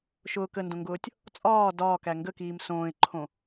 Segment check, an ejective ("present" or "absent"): present